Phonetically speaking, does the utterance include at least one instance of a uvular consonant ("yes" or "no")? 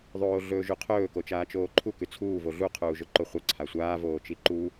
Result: yes